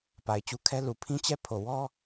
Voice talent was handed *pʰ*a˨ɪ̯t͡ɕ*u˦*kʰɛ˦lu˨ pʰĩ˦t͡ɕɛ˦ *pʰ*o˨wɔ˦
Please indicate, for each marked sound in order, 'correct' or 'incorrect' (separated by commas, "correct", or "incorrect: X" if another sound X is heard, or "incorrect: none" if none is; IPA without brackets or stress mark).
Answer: incorrect: p, correct, correct